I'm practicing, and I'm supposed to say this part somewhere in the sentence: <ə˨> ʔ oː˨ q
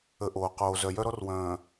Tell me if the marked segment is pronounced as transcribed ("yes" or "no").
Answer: yes